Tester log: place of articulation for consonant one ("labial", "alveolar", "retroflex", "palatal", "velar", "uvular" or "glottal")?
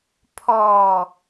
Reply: labial